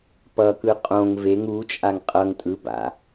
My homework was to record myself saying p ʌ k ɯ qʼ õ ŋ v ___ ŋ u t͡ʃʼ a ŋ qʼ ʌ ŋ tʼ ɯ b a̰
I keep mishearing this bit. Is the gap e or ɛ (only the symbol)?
e